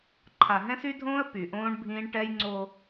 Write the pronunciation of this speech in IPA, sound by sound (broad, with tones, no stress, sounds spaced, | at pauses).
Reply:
ǃʰ a˨ ɦ ɛ̃˦ s y˦ dʱ õː˦ ə̯ p y˨ ʔ õː˦ ɳ bʱ ĩː˦ ɳ ʈ ɛ˦ j ŋ͡ǀ o˦